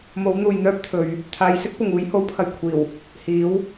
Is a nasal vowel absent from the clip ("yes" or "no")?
yes